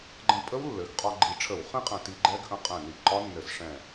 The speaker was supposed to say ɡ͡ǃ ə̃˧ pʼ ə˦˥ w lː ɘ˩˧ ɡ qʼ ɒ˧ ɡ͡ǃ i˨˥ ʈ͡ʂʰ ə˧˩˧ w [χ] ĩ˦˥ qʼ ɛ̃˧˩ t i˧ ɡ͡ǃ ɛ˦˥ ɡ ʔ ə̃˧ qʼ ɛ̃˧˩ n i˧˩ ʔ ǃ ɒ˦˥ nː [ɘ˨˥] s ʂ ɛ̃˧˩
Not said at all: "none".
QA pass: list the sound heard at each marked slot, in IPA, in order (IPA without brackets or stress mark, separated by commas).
χ, ɘ˧˩˧